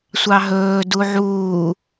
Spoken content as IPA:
sʷɑɦɵː duʕuː

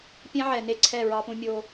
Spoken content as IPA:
pʲɛ̃˦ʕɛ˨ne˦ǀʰɛ˦˨ ɹɑ˦pũ˦mʲo˦

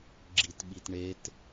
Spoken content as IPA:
ɡ͡ǁitɓitɳet

